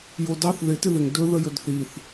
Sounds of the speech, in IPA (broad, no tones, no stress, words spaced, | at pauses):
jodɑθ ðɪ tɪðɪŋ dɵ ðəjɵdθiθ